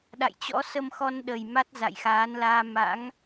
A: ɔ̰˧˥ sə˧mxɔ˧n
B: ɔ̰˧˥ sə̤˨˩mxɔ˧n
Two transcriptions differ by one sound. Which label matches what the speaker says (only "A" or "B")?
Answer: A